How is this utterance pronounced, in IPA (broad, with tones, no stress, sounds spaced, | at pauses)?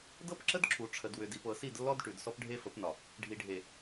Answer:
d ɤ˦ p ǁ ə˦ d ǁʰ u˨ ʈ͡ʂʰ ə˨ d w ʏ˨ d i˨ p ɤ˨ s i˦˨ d lː ɔ˦ d ʈ ʉ˨ d s ɔ˦ p ɖʱ e˦ f ə˨˦ p n ɒ˨ | ɖʱ i˨ ɖʱ e˨